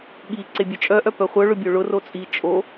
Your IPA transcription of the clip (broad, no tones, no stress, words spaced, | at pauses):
ɠi ǀebʲœt͡ʃʼœʔœ pœχʷœ ɭʊbʲoɭʊ rot͡sʼi t͡ʃʼo